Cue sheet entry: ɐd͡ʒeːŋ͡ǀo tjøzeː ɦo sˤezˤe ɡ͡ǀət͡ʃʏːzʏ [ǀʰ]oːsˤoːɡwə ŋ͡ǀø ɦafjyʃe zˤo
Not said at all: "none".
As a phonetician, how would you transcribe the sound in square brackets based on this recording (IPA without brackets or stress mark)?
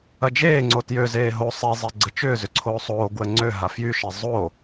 ǀʰ